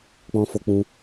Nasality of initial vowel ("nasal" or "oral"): nasal